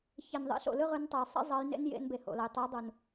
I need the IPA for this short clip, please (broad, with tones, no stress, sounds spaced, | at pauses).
ç e˩ n ðˤ ḭ˨˦ ɬ o̰˩ l ɯ˥ ʁ ɯ˨˦ n tˤ ɛ˩ j sˤ ḭ˥ zˤ ʌ˨˦ j n ḛ˥ n j ḛ˨˦ n b e˩ h o̰˩ l ʌ˩ j tˤ e˨˦ j dˤ u˩ n